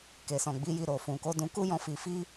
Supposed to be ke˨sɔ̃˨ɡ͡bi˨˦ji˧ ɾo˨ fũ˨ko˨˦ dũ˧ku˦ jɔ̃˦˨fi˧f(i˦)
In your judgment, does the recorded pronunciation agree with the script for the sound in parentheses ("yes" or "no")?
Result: yes